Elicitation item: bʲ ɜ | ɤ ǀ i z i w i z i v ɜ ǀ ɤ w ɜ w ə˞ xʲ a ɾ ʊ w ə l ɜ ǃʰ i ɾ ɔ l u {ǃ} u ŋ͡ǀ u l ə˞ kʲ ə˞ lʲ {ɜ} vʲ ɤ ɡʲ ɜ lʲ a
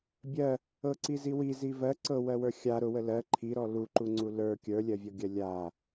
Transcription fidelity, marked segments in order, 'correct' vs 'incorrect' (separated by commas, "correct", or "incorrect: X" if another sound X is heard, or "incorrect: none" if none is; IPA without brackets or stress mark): correct, correct